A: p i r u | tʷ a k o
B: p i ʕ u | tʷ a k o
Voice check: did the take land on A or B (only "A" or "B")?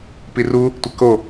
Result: A